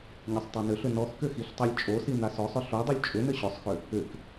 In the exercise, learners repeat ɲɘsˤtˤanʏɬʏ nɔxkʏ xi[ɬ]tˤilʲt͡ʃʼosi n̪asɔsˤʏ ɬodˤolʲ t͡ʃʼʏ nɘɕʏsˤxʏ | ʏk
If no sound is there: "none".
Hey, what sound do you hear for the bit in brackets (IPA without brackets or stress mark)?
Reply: ɬ